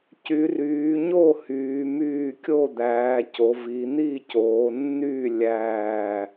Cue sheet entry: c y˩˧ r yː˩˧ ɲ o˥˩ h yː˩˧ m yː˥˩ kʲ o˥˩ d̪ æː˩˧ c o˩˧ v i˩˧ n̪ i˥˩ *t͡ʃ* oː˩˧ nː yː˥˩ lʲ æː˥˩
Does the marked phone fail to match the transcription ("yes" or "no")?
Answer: yes